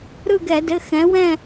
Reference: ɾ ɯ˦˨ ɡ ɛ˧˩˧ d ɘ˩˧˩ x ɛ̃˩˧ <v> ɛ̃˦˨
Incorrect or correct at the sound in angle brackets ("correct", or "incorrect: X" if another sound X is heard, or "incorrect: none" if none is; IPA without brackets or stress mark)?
incorrect: w